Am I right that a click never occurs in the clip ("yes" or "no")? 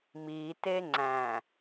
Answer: no